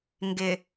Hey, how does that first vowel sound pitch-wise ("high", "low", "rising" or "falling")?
low